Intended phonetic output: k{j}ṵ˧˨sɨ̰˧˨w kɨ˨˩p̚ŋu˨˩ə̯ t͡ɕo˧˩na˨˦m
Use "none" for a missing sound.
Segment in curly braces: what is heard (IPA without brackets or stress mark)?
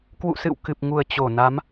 w